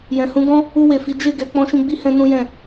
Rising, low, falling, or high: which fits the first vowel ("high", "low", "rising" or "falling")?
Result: low